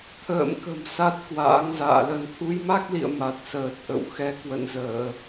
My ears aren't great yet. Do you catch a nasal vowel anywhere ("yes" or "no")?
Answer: no